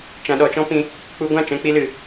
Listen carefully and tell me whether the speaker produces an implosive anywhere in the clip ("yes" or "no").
yes